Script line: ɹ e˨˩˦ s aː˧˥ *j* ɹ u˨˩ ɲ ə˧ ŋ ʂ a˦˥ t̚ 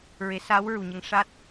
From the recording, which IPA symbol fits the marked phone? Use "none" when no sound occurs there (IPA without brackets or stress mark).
w